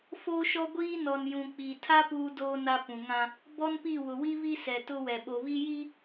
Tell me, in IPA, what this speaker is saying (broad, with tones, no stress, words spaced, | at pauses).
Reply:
foː˦ʃɔ˦ɡʷiː˦ nɔ˨njũ˨k͡pi˨tʰa˦ puː˦doː˦na˦ pũ˨ŋã˦ | bɔ˦npi˦˨ wʊ˨wi˦βi˦ sɛ˨tʊ˦wɛ˨ ɓo˨βi˦ji˦